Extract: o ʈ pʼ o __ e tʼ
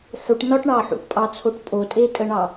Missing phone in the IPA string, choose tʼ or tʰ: tʼ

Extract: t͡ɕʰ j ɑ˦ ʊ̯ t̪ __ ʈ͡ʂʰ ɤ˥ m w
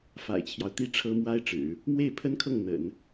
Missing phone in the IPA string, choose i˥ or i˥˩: i˥˩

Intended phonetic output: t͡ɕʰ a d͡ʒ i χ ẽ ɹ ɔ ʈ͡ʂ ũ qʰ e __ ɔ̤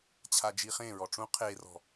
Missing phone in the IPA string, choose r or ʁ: r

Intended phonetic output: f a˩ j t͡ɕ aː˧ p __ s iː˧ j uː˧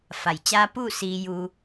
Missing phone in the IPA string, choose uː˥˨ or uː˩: uː˥˨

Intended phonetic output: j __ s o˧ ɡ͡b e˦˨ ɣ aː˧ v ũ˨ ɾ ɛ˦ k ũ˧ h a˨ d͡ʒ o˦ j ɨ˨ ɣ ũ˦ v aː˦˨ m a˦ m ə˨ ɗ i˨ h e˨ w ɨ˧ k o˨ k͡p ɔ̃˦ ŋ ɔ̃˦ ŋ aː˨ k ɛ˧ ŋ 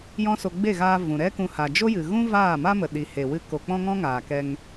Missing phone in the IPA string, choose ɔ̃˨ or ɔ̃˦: ɔ̃˦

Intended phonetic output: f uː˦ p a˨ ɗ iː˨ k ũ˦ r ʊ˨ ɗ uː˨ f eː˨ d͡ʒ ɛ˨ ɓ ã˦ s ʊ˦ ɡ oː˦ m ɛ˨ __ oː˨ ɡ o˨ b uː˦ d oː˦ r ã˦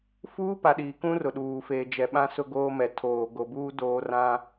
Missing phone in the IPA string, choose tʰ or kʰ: tʰ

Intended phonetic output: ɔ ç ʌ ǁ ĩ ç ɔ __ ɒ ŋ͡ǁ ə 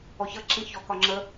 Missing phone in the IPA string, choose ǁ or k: k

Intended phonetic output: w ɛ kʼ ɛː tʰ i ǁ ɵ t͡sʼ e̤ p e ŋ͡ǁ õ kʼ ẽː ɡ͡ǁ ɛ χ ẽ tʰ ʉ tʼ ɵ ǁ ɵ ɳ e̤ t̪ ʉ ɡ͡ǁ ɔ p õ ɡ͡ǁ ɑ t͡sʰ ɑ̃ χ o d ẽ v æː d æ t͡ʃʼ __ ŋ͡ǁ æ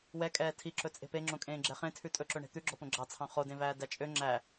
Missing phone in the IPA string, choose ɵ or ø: ø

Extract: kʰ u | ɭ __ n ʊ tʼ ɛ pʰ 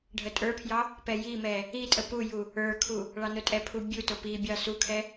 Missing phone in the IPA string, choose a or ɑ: ɑ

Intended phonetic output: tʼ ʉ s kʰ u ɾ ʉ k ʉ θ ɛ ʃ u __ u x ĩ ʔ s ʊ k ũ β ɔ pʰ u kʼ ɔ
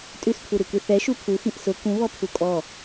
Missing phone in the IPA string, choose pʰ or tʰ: pʰ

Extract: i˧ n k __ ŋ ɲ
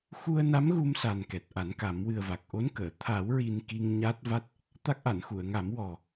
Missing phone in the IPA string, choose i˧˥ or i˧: i˧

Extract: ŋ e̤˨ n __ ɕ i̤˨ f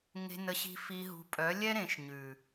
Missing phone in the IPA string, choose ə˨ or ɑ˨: ə˨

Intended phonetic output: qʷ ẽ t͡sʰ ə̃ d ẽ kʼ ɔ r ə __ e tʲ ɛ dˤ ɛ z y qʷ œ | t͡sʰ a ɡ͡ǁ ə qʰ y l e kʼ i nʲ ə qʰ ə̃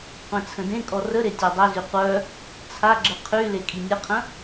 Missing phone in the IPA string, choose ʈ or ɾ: ɾ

